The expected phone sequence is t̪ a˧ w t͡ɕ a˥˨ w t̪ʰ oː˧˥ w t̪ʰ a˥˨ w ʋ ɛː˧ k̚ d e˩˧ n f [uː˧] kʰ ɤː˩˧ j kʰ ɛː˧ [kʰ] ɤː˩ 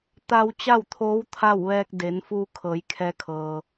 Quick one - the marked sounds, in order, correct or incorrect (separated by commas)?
correct, correct